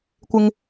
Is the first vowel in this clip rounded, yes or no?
no